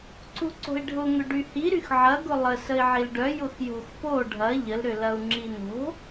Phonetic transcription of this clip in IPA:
ǀ u ǀ o̤ i̯ ɖʱ ʊ ŋ ʏ ɖ y h i ɾ y x ʕ ɐ ɡ ʊ lˠ ə s ə i̯ ʕ i l ɖ œ j ʊ x j o̤ x p o ɖʱ ɐ ʎ ə l ɾ ʏ l ɐ u̯ ŋ͡ǁ i n o̤

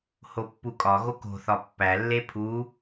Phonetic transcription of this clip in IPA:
h o pː u kʼ ɒ ɣ o k o̤ θ ɒ pː æ lː e pʰ u

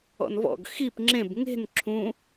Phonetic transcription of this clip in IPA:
ɔ̰ n v ɔ̰ ɡ x i p ŋ͡ǁ ẽ b ŋ e̤ n ǁʰ ũ

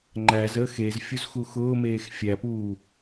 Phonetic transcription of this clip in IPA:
ŋ͡ǃ æ z əː x e z fʲ u z x u x ʊː m eː x fʲ æ p uː

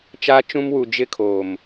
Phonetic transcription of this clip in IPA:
t͡ʃ a˦ t͡ʃ ũ˦ m w u˨ d͡ʒ ɪ˦ kʰ oː˨ m

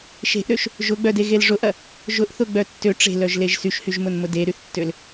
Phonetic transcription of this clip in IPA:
ʃ e̤ ʔ ɾ ø ʃ | ʒ ʊ ɡ͡b œ d e ɣ e l ʐ ʊ ʔ ɐ | ʒ ʊ ʔ θ ʊ ɡ͡b œ tː ø ʈ͡ʂ e̤ l œ ʒ l e ʒ s y ʃ h y ʒ m ʊ n m ʊ d e ɾ y θ tː ø l

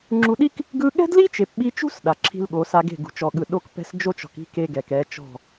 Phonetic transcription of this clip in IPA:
ŋ͡ǁ u˨ ɗ i˦ k | ɡ ɯ˦ ɠ ɛ̤˦ d l i˦ t͡ʃ e˨ p ɓ i˦ t͡ʃ ṳ˦ s ɗ a˨ ǁʰ i̤˦ l ɠ o˨˦ s a˦ ɡ e̤˦˨ ɡ ṳ˨ t͡ʃ ɔ˨ ɠ ɯ˨ ɗ o˦ k p ɛ̤˦ s d͡ʒ o˦ t͡ʃ ɔ̤˨ k i̤˦ k e˦ ɡ ɛ˨ k ɛ˨˦ t͡ʃ ɔ̤˦˨

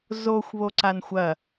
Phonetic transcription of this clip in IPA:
z o xʷ β o ǀ a n xʷ ɐ

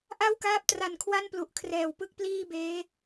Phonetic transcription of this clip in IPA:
ʔ a˥˩ w k aː˦˥ p̚ t r a˨˩ n kʰ w a˥˩ n p l u˨˩ ʔ kʰ r ɛː˨˩ w p ɯ˥˩ k̚ p l iː˥˩ b eː˦˥

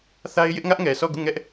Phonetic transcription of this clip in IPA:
θ a˦ ɪ̯ j ɪ˦ ʔ ŋ ä˦ ʔ ŋ ɛ˨ sʰ ɔ˦˨ ɡ u˦˨ ŋ ɛ˦ ʔ

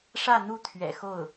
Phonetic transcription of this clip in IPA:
ʂ ä˥˧ n̪ u˥˩ t̪ʰ ɥ ɛ̰˨˩ x o˥˩ ʊ̯

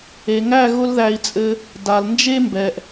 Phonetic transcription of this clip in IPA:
e˨ ŋ æ˦˨ ɣ ʊ˦ l ð æ˧ i̯ t͡sʼ ɘ˧ | d a˨ l n d͡ʒ e˦ m b ɛ˨ ʔ

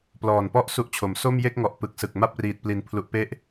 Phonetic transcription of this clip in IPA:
p l ɔː˨˩ n p ɔ˥˩ ʔ s u˥˩ ʔ t͡ɕʰ o˩˦ m s o˥˩ m j e˥˩ k̚ ŋ ɔ˨˩ ʔ p ɯ˨˩ k̚ s ɯ˨˩ k̚ m a˥˩ p̚ r iː˨˩ t̚ p l i˨˩ n pʰ l u˨˩ ʔ p e˦˥ ʔ

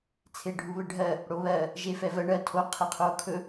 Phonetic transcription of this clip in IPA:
t͡sʰ e ɖʱ u β ɘ ɖʱ ɜ | ɽ o β ɜ | ʒ e f ɛ v ɜ ɳ ɜ tʰ o qʰ ɘ qʰ o kʰ ɵ

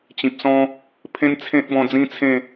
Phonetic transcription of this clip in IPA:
t͡ɕ ĩ˨ p̚ s ɔ̃˦ | pʰ ẽ˦ n t͡sʰ ẽ˦ t̚ b ɔ̃˧ d͡z ĩ˦ t͡sʰ ẽ˥˧

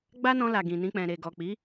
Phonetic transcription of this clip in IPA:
ɡ͡b a˦ n ɔ̃˧ l a˨ ɡ ĩ˨ n ĩ˧ k͡p ɛ̃˨ ɾ e˨ ɡ ɔ˨ k͡p i˨˦

